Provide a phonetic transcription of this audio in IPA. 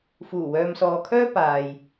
f uː˨˩ w œː˨ m s ɔː˨ kʰ œː˥ p aː˨ j

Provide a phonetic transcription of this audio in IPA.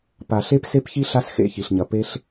p a˨ ɬ e˦ p s e˦ p ç i˦ ɬ a˦ s x ḛ˦˨ ç i˨ ɬ ɲ ɐ˨ p e˧ ɬ

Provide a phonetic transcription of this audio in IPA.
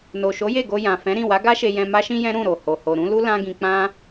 n o˨ ʃ o˨˦ j e˦˨ ɡ o˧ j ã˨ f ɛ̃˨˦ ɾ ĩ˦˨ w a˨˦ ɡ a˦ ʃ e˧ j ɛ̃˧ m a˦ ʃ ĩ˦ j ɛ̃˦ ɾ ũ˦˨ ɾ o˨ h o˨ h o˨ ɾ ũ˨˦ l u˦ l ã˦ ɡ ĩ˧ k͡p ã˦

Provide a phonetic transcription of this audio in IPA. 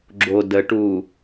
ɡ͡ǁ o d ə ʈ u

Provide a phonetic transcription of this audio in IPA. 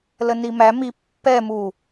l ə n i m æ m i pː ɛ m u

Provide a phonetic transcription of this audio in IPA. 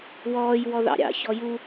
w ɔː j w ɔ ð ɑ̰ ɾʲ ɑ̰ ç ɔ j u

